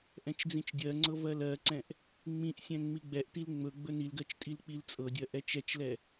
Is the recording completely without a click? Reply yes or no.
no